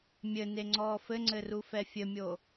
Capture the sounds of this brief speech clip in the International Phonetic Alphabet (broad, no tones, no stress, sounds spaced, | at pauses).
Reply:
mʲ ɘ n e ŋ͡ǀ ɔː f ɘ ŋ͡ǀ ɘ r u f ɛ fʲ ɘ mʲ oː